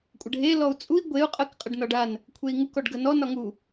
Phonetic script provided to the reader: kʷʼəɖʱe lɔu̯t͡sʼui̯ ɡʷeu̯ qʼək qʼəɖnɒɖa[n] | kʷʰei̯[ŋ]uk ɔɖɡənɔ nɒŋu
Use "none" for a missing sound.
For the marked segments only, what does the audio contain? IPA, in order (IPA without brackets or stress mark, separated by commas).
n, ŋ